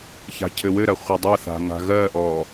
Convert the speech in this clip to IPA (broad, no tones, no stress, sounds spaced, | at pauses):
ç a̤ cʰ ɘ w ɘ ɾ ɐ χʷ ɘ dˤ ɐ θ a̤ ŋ a̤ ɣ ɜ ʔ ɔ